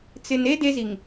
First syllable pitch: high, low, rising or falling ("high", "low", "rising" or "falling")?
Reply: low